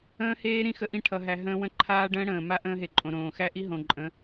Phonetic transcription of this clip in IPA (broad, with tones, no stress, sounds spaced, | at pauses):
ə̃ː˦ h eː˦ ɾ ĩ˦˨ x ə˦ ʔ ĩ˦ ʈʰ ʌ˦ ɦ æ˦ ɦ ə̃ː˦ w ə̃˦ ǃʰ aː˦ ɖ ə̃ː˦ ɽ ə̃ː˨ m a˦ ʔ ə̃ː˦ ɦ e˨ ǃʼ õ˨ ɾ õː˨ x æ˦ ʔ i˦ ɦ õ˨ ǃʼ ə̃˨˦